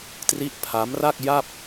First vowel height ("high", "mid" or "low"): high